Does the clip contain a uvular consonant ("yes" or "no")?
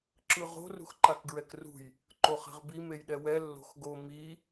yes